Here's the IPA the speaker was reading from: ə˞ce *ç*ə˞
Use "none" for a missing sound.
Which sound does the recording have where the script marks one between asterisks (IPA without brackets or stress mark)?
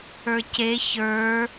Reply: ç